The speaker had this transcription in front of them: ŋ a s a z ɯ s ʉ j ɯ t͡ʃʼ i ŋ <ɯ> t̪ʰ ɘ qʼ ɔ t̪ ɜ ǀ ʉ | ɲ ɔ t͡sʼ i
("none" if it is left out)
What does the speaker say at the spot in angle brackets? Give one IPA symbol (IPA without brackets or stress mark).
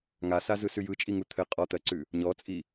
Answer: u